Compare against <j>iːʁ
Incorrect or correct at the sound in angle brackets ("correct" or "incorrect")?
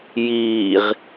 correct